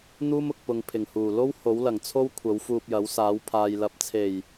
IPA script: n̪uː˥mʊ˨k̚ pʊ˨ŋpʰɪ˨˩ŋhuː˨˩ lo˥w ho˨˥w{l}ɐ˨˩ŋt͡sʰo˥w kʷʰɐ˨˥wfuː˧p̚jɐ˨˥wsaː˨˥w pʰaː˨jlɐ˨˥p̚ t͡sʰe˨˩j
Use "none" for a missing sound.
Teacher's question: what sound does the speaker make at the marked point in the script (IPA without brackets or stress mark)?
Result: l